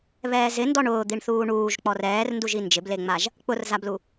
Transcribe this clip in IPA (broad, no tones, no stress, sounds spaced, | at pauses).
β ɛː z ɪ n d ɔ ɳ ʊː d̪ i ɳ θ uː ɳ uː ʒ k͡p ɔ r ɛː r n d u ʒ i n d͡ʒ ɪ b l e ŋ͡m a ʒ | k͡p ʊ r z a b l u